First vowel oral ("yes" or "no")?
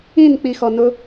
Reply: no